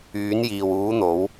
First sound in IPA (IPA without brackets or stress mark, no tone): yː